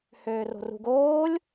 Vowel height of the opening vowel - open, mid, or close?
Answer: mid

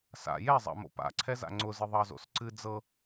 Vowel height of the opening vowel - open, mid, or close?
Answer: open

